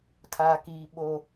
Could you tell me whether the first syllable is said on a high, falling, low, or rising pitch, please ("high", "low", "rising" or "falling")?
low